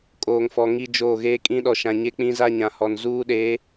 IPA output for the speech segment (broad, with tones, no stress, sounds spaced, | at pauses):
kʼ oː˨ ŋ f ɔ˨ ŋ i˦ d͡ʒ oː˦˨ ɣ eː˦ kʼ ĩ˦ ɗ ɔ˨ ʃ ã˨ ɲ e˦ k͡p ĩ˦ z a˦ ɲ ã˨ h ɔ˨ n z uː˦ ɗ eː˨˦